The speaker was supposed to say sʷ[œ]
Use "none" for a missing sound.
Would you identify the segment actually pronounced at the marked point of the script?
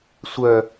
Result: œ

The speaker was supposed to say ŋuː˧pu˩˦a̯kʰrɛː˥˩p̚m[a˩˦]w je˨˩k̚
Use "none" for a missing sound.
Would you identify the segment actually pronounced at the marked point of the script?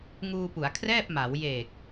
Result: a˩˦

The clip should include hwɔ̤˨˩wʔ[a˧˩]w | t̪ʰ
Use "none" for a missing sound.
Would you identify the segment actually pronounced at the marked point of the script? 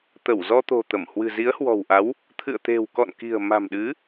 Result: a˨˦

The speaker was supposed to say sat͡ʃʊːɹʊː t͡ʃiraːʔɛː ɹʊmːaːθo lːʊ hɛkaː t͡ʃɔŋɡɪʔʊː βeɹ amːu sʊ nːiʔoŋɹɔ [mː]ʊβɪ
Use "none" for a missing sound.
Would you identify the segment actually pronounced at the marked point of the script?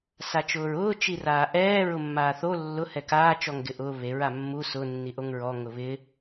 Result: ŋ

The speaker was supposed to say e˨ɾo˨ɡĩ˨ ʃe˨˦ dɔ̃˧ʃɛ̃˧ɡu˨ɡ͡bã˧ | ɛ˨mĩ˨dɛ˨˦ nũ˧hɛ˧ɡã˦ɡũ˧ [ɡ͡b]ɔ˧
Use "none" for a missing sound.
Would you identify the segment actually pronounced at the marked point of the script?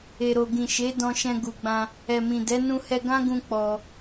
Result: k͡p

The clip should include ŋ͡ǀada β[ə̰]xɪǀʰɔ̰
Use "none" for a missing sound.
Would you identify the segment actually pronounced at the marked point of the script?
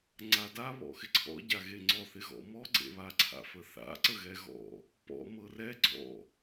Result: ɔ̰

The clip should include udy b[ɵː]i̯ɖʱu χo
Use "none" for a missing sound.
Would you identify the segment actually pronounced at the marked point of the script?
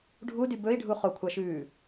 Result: ɵ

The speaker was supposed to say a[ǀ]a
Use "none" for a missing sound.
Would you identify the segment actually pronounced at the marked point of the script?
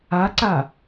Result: ǀ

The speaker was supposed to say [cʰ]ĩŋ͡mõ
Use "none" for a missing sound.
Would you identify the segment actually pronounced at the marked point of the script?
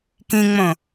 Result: k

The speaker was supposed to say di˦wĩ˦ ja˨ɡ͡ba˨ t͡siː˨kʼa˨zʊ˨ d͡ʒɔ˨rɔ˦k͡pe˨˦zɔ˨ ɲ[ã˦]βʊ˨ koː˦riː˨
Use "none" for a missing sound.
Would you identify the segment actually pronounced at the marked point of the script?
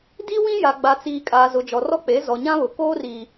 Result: ã˦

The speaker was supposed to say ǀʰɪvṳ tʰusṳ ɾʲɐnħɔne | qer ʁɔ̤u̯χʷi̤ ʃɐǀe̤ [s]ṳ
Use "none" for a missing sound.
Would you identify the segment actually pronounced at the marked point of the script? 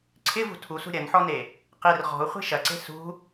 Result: s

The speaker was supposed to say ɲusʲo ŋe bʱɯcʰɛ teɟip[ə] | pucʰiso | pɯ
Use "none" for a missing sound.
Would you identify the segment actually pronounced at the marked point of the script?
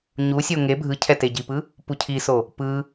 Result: ɯ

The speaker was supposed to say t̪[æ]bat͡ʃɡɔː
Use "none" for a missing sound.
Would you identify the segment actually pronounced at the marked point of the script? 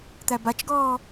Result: æ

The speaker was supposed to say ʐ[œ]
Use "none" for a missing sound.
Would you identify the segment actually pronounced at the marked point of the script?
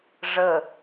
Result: ə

